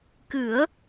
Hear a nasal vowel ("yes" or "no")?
no